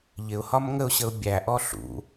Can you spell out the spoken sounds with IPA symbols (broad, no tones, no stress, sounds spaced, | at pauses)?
ʎ ɪ ʊ̯ h ɒ m ŋ ə ʊ̯ ɕ ə ʊ̯ bʲ æ ʔ ɔ ɬ ṵ